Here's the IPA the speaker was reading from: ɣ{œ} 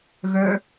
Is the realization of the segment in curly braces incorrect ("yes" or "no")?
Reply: no